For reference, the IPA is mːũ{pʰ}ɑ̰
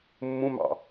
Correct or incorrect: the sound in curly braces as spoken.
incorrect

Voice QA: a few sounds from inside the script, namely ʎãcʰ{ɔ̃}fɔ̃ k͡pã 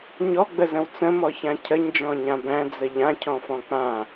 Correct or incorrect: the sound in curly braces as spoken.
correct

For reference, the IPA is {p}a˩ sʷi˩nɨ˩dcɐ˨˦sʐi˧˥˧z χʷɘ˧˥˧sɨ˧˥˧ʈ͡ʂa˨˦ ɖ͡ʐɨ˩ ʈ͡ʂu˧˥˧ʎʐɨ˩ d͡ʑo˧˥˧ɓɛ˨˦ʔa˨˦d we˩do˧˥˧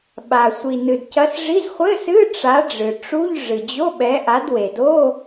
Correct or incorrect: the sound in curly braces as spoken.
incorrect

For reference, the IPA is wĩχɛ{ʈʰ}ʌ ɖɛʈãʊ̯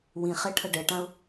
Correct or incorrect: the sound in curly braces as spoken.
correct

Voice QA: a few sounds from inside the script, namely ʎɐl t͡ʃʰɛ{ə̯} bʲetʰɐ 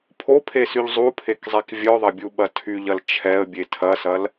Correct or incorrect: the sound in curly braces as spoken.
correct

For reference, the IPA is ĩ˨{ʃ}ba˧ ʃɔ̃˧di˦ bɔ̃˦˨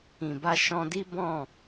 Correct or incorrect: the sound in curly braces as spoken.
incorrect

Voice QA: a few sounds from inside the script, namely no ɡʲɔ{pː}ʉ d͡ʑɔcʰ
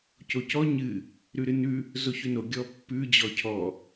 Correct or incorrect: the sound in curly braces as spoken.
correct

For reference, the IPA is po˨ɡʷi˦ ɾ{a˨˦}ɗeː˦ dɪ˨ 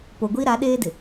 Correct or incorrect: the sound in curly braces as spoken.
correct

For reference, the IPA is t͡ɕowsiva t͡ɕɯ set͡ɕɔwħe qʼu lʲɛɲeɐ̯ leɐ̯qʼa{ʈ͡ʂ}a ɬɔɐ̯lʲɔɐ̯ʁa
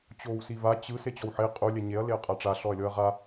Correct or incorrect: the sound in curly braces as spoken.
correct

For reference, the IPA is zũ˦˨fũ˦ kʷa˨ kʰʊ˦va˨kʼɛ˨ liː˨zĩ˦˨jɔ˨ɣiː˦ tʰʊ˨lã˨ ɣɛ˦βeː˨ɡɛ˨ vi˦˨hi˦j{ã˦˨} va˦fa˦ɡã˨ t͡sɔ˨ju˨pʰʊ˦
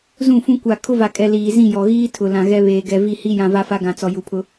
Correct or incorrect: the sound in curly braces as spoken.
incorrect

